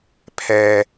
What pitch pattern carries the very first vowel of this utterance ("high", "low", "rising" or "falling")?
low